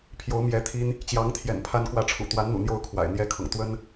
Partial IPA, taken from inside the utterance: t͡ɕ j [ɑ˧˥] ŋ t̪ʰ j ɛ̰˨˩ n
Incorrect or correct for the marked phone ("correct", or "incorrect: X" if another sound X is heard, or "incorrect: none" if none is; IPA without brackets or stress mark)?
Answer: correct